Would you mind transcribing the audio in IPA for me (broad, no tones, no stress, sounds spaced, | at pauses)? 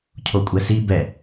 cʰ o kʷʼ ɛ s i b ɛ